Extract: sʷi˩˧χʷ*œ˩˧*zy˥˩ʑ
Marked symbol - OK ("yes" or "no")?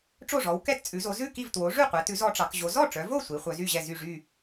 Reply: yes